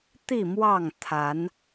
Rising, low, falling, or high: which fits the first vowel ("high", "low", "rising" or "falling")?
falling